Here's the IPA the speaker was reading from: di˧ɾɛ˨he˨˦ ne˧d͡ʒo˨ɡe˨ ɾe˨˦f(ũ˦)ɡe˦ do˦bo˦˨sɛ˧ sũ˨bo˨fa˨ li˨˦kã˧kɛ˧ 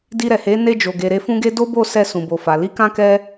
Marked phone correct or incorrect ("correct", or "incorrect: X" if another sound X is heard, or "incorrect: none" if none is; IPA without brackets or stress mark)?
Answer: correct